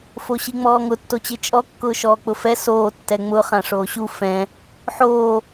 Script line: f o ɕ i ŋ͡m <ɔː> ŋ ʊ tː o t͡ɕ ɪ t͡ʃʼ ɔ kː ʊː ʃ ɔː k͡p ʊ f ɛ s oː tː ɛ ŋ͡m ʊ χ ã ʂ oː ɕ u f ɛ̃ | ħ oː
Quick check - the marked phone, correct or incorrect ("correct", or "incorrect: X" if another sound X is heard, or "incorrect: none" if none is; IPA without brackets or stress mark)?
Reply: correct